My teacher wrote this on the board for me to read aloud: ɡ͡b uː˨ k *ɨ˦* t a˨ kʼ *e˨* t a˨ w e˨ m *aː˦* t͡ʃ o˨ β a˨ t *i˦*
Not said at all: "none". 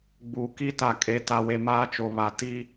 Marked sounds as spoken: i˦, e˨, aː˦, i˦

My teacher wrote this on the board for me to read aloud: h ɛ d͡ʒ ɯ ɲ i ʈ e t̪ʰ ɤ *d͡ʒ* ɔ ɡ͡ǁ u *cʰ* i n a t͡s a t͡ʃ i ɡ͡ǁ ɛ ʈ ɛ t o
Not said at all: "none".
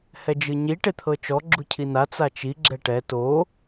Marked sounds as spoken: t͡ʃ, cʰ

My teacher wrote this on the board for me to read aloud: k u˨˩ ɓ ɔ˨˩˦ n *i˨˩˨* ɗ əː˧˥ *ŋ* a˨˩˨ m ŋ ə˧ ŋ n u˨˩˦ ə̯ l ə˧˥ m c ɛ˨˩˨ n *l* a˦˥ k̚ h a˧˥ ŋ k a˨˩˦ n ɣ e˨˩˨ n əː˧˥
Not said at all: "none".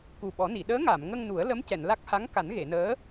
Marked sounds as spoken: i˨˩˨, ŋ, l

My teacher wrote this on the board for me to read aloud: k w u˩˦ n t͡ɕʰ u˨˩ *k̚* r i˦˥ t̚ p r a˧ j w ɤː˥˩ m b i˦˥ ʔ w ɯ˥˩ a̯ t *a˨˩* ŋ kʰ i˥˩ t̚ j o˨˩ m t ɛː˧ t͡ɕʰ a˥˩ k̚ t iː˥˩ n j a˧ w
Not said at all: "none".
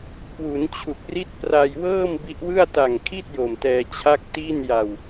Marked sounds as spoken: k̚, a˨˩

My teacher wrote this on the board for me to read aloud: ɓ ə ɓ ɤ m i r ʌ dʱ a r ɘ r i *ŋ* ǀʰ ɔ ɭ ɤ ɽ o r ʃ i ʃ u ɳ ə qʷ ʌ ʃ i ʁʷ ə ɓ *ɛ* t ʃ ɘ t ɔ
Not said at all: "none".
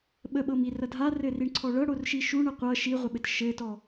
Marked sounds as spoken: ɳ, ɘ

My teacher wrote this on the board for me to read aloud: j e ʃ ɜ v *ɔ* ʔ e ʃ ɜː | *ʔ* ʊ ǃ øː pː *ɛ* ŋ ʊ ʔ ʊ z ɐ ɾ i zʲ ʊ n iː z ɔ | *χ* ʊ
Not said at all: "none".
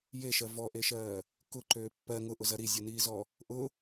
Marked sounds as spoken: ɔ, k, ɜ, ʔ

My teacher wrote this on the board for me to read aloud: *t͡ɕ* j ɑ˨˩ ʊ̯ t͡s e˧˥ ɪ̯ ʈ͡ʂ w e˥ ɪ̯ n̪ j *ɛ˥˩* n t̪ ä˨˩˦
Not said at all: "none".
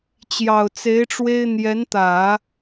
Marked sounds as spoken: t͡ɕ, ɛ˧˥

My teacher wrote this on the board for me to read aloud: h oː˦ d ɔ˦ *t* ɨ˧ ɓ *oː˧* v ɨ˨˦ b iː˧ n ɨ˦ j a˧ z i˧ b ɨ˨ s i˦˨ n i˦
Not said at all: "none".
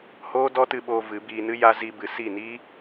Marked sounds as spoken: t, oː˧

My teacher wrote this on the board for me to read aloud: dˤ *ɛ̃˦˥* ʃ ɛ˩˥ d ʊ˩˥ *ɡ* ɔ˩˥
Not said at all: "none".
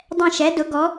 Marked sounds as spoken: ɛ̃˦˨, ɡ

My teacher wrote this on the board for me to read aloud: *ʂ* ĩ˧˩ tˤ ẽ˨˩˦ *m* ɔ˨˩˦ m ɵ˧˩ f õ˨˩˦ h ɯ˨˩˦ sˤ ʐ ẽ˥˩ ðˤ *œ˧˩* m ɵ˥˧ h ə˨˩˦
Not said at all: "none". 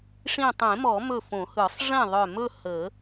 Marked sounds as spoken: ʂ, m, œ˧˩

